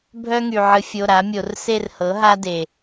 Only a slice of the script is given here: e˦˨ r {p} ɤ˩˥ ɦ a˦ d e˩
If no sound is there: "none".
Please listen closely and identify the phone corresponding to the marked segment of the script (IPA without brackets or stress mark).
h